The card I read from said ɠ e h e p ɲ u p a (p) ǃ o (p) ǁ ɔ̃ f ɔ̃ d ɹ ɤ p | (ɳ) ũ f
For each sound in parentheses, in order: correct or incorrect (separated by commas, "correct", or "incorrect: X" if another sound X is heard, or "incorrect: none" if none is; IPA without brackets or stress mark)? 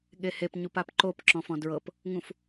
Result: correct, correct, incorrect: ŋ